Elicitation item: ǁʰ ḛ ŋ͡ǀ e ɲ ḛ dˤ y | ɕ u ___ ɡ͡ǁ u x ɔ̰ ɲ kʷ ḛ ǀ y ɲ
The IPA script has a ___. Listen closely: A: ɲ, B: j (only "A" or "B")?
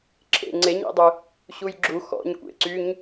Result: B